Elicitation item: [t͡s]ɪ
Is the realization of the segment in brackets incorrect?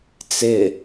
no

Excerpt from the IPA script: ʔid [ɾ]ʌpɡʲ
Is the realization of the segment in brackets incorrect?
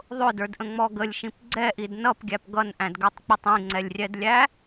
yes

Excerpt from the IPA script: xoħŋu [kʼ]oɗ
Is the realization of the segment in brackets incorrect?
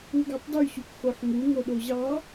yes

